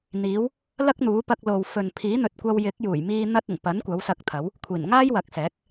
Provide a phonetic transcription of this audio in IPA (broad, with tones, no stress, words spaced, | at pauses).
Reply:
n̪iː˨˧w | lɐ˥k̚n̪uː˨˥ pɐ˧k̚lo˨w fɵ˨n pʰiː˨˥n̪ɵ˨t̚kʷɐ˧w jɪ˨˥k̚juː˨˩jmiː˧ n̪ɐ˧t̚ ɪ˨˩ŋpɐ˨˥n kʷɐ˨˥wsɐ˧k̚t̪ʰɐ˨˥w | kʷʰiː˨˩nŋaː˥jwɐ˨˥k̚sɛː˨˥k̚